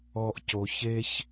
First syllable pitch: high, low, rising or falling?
high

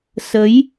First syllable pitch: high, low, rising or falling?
rising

